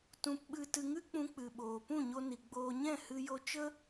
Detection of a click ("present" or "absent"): absent